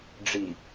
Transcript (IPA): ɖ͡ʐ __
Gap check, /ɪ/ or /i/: i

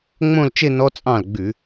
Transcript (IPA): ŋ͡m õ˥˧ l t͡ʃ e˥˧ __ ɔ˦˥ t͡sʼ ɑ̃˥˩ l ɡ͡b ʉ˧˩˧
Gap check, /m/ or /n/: n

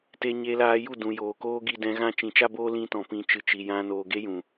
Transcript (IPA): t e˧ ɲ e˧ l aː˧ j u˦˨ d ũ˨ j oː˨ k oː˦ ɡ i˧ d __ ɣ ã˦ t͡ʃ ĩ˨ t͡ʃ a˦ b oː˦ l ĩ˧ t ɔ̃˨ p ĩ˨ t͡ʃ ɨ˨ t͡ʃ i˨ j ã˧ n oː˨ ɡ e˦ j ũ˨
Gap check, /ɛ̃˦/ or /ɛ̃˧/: ɛ̃˧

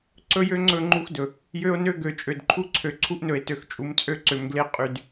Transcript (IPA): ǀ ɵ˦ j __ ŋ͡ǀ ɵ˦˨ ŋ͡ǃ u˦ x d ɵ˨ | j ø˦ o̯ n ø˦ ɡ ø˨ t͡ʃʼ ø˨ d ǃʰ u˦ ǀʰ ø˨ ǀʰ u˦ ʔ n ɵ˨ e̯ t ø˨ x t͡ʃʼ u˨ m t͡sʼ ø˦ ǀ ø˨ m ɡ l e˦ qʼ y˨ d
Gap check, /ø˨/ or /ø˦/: ø˦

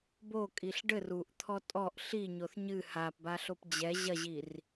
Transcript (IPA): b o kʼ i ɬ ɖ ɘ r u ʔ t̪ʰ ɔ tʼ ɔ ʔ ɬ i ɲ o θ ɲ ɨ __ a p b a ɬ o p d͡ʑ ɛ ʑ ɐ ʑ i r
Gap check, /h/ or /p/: h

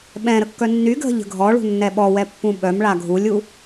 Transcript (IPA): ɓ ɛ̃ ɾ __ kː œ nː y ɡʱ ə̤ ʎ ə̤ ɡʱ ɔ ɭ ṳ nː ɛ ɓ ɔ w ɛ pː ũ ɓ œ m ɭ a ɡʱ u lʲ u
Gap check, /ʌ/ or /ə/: ə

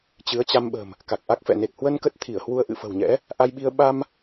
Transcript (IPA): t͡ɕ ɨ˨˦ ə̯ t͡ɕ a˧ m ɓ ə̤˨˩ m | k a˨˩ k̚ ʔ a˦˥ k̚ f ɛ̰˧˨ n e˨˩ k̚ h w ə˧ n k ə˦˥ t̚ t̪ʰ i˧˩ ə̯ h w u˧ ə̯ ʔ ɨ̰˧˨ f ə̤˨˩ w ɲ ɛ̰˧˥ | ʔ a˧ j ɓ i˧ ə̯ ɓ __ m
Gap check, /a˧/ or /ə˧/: a˧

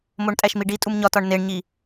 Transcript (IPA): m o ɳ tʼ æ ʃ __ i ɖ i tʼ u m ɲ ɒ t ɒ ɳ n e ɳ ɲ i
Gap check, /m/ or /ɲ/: m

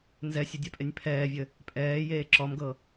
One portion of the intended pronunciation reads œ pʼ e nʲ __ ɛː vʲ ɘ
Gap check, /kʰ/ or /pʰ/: pʰ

